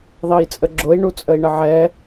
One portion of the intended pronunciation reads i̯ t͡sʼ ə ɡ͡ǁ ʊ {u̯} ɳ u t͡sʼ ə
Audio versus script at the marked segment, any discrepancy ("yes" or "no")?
yes